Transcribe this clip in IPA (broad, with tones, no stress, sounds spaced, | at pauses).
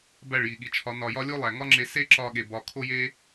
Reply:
b æ˦˨ ɭ j i˨ ɠ i˨ t͡ʃʰ ɒ˨˦ n ɒ˨ j ɒ˧ lʲ o˦ lˠ æ˨ ŋ ɒ˦ ŋ͡ǁ e˧ s e˦ ǁ ɒ˧ ɠ e˨ b ɒ˨ kʰ o˦ j e˦